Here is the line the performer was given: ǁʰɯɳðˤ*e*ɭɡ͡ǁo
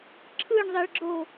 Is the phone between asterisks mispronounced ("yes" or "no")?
no